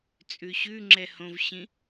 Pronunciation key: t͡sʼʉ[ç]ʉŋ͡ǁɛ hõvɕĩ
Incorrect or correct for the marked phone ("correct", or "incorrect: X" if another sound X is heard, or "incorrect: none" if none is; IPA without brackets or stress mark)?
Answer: incorrect: ɕ